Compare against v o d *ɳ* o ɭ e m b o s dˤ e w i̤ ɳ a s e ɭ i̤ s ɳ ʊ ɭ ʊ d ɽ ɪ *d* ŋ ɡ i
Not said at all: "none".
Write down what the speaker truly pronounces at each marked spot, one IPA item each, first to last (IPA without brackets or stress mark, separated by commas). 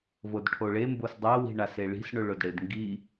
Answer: ʈʰ, d